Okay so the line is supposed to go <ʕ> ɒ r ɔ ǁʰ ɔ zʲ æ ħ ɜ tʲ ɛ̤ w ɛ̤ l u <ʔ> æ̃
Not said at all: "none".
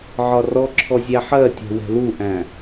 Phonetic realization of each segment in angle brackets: ʕ, ʔ

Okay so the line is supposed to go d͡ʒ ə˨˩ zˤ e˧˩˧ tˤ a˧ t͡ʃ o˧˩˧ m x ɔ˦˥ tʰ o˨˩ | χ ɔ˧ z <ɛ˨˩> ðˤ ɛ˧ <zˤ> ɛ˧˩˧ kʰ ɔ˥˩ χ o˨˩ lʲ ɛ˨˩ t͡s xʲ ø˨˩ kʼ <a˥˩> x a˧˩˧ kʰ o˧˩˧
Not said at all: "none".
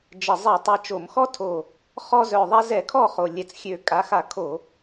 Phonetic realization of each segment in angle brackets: œ˨˩, z, a˩˥

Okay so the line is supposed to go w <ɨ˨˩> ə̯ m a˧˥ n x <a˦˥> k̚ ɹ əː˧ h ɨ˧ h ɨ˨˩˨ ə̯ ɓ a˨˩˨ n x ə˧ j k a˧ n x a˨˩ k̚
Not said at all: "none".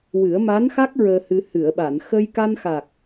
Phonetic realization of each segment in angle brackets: ɨ˨˩˦, a˦˥

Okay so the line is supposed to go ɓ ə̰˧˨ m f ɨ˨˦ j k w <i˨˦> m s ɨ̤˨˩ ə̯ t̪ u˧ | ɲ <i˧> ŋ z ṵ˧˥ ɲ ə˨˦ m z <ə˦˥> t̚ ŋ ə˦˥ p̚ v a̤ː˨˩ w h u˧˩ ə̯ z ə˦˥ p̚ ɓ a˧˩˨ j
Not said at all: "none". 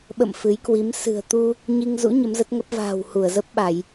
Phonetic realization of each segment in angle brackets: i˨˦, i˧, ə˦˥

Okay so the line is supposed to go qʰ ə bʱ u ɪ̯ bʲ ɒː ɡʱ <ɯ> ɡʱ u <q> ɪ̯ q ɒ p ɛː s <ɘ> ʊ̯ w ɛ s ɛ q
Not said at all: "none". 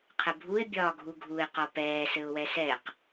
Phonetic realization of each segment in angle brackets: u, none, ɘ

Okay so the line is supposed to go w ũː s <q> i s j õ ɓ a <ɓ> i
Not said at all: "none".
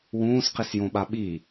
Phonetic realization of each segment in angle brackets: q, ɓ

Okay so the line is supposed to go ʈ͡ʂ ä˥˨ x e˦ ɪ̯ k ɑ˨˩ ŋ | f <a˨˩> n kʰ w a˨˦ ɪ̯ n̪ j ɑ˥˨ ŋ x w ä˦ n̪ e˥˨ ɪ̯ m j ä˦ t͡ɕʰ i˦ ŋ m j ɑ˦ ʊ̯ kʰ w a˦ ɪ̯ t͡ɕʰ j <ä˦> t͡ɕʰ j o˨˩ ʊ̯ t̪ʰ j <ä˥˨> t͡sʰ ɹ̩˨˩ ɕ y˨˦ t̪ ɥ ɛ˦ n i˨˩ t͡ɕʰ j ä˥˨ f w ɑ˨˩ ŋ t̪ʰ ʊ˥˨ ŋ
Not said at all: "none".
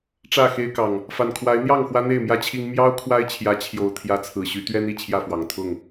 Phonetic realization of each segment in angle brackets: a˨˩, ä˨˦, ä˨˦

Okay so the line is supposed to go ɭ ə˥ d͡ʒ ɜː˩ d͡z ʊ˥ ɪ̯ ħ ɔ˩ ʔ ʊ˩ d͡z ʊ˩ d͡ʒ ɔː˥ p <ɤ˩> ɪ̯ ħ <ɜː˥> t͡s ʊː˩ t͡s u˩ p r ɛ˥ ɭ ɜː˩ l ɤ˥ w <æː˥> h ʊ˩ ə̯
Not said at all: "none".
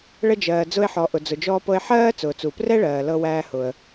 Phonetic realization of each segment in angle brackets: ɤ˥, ɜː˥, æː˥

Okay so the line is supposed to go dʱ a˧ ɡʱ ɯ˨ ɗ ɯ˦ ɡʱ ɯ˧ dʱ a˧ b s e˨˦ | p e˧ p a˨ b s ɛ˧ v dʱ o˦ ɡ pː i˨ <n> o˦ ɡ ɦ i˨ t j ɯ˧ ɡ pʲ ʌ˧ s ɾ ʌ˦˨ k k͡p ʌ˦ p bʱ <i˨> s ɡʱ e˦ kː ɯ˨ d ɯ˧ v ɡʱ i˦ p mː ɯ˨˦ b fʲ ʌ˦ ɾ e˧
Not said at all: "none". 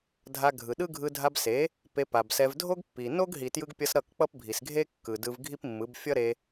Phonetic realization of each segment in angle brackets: n, i˨

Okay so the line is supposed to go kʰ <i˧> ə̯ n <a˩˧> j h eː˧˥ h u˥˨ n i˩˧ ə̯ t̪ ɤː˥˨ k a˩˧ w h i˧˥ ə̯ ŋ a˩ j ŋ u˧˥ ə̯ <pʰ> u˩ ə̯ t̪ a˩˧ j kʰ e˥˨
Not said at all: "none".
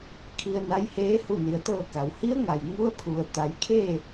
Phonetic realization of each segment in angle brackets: i˧, a˧˥, pʰ

